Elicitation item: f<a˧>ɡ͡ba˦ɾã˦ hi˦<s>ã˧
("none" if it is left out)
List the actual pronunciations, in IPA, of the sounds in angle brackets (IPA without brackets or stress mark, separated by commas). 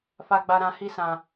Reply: a˦, s